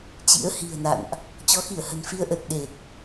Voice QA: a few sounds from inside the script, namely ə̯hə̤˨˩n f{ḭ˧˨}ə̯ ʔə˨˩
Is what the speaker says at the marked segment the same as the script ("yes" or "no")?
no